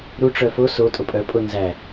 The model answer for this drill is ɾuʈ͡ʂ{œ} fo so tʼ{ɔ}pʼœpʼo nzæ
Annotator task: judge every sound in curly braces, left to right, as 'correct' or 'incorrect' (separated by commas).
correct, incorrect